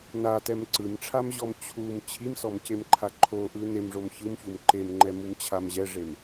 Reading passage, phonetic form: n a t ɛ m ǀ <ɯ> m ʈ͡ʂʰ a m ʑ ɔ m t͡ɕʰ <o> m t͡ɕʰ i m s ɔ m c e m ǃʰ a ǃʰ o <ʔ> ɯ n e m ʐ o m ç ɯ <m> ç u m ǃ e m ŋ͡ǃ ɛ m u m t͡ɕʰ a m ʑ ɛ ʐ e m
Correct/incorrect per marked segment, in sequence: correct, incorrect: u, correct, correct

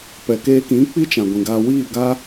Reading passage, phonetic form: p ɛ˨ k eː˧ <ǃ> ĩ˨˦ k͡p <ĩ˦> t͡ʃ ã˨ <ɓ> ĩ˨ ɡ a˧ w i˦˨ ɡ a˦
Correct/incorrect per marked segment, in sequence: incorrect: k, incorrect: i˦, incorrect: ɡʷ

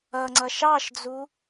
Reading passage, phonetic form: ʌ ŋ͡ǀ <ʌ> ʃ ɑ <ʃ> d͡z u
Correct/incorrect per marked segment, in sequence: correct, correct

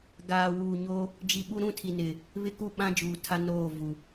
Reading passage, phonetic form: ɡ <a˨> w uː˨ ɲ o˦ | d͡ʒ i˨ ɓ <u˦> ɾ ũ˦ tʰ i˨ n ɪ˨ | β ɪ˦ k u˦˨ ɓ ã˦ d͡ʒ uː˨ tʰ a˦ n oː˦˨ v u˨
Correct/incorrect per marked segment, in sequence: incorrect: aː˨, correct

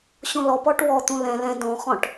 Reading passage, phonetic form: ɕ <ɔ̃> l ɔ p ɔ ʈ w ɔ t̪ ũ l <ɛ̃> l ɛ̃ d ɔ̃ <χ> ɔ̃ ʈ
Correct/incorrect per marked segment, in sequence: incorrect: õ, correct, correct

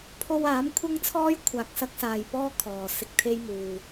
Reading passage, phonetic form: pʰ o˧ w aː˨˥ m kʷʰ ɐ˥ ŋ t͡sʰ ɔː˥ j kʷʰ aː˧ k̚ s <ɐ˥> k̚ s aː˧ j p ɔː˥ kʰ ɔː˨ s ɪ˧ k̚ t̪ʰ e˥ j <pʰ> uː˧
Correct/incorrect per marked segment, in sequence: correct, incorrect: m

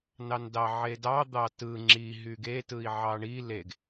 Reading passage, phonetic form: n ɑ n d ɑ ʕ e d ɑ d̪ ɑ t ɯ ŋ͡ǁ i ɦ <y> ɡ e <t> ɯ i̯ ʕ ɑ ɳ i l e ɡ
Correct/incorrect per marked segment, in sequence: correct, correct

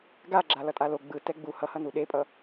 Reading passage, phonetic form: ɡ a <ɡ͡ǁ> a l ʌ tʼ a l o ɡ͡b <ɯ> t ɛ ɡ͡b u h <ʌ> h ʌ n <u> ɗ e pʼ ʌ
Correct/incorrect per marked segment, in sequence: correct, correct, correct, correct

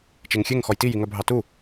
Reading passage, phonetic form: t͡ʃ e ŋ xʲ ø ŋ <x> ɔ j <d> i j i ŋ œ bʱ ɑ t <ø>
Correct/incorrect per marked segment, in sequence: correct, incorrect: t, incorrect: u

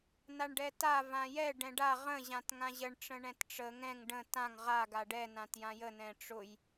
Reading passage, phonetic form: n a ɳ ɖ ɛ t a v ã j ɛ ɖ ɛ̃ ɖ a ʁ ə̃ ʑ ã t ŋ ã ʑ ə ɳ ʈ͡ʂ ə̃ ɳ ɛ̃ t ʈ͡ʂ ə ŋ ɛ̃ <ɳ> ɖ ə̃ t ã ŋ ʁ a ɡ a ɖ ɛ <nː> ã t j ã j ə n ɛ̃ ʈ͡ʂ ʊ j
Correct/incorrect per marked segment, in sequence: incorrect: ŋ, incorrect: n

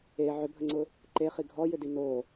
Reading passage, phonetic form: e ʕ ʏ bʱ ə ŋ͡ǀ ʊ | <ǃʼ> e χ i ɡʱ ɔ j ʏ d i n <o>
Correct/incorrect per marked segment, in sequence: incorrect: ǃ, correct

